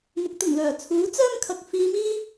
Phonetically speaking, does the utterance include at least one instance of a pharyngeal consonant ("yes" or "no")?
no